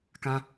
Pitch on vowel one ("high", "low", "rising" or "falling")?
high